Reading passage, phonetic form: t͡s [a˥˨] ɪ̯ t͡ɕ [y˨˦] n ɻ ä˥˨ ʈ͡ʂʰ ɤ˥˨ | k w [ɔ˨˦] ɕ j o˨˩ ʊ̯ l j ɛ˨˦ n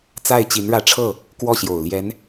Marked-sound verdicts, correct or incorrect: correct, incorrect, incorrect

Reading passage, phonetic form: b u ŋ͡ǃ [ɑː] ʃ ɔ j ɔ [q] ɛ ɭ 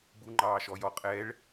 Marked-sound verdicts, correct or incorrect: correct, incorrect

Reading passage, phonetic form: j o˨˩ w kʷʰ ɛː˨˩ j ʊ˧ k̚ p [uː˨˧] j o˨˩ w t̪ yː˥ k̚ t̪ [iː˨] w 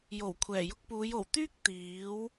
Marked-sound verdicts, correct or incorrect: correct, incorrect

